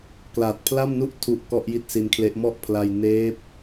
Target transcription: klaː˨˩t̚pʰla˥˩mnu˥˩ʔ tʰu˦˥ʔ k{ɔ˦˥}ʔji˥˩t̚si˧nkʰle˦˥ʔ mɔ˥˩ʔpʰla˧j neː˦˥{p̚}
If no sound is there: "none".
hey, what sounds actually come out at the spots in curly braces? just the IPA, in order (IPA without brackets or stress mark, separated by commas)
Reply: ɔ˥˩, p̚